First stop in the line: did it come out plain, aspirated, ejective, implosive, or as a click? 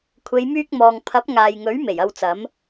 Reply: aspirated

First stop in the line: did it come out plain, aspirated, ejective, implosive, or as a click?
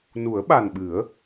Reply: implosive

